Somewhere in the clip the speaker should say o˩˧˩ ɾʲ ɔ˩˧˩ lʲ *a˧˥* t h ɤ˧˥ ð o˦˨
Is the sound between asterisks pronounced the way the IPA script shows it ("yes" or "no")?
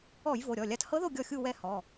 yes